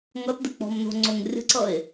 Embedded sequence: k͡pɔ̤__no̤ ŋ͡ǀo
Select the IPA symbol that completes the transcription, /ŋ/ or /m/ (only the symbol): m